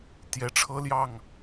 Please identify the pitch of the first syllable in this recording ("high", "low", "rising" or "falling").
rising